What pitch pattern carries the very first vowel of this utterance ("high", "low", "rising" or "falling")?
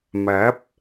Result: rising